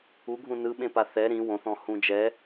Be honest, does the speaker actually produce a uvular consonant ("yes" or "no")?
no